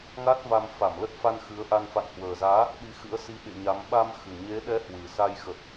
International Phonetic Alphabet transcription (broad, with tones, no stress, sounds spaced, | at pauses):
ŋ a˦˥ t̚ v a˧ m f a˧˩ m l ə˦˥ t̚ f a˧ n x ɨ˨˦ ə̯ ʔ a˧ n f a̰˧˨ n h w əː˨˩ z aː˨˦ | ɗ i˨˦ x ɨ̰˧˥ ə̯ s i˨˦ ɓ ḛ˧˨ ɲ a˨˦ m ɓ a˧ m x ɨ˨˩ ɲ e˨˦ ɗ ɛ˨˦ h w ɨ˨˩ s a˧ j x ə˨˩ t̚